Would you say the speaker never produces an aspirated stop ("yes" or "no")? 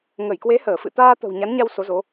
yes